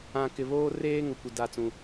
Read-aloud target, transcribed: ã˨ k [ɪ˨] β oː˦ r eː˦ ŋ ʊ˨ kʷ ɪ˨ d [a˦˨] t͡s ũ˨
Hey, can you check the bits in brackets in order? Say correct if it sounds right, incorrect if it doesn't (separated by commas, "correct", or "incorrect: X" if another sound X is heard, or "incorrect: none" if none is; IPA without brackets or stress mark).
correct, correct